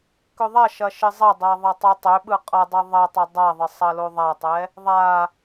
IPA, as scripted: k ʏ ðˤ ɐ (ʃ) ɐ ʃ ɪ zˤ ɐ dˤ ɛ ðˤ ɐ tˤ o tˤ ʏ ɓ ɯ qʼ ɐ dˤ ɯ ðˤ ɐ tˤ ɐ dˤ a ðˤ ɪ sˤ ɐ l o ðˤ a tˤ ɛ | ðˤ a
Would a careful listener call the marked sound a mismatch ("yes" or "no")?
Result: no